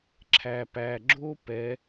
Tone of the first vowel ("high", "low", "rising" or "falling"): low